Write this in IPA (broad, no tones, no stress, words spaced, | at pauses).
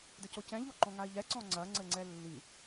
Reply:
dɘcocɛ̃ ʎoǃɔ̃ŋai̯ʎɛ ǀɔ̃ŋ͡ǀɐ ŋ͡ǀɘŋ͡ǀɛlːi